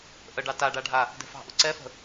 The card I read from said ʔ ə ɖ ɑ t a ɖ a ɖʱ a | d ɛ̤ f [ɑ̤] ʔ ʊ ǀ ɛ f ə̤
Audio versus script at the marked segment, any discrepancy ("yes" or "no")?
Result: no